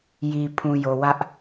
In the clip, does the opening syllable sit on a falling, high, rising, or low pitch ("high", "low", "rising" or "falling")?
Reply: low